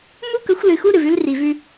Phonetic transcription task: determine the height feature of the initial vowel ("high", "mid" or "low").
high